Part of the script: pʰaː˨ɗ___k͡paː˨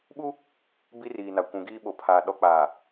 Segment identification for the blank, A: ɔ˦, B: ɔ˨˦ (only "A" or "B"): B